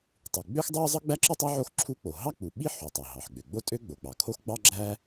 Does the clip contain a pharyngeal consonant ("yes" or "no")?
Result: yes